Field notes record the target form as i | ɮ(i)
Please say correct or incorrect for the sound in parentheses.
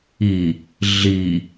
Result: correct